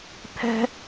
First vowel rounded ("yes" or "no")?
no